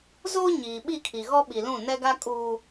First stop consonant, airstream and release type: implosive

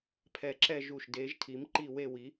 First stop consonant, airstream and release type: aspirated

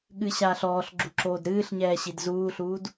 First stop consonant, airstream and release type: implosive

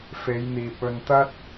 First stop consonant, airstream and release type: plain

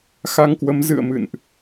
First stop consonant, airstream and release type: plain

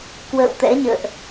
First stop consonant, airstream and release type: plain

